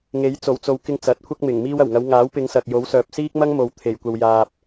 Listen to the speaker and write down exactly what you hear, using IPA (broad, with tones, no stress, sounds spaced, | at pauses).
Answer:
ŋ e˨˥ j t͡s o˨˩ w t͡s o˨ w k ɪ˧ ŋ t͡s ɐ˨˥ t̚ kʷʰ ɐ˥ k̚ m ɪ˨˩ ŋ m iː˧ w ɐ˨˩ w ŋ ɐ˨˧ w ŋ aː˨˥ w p ɪ˨˧ ŋ s ɐ˨ k̚ j o˨˥ w s œː˨ p̚ s iː˥ k̚ m ɐ˥ ŋ m o˨ w t̪ʰ e˨˩ j kʷ ɐ˨ w j aː˨ p̚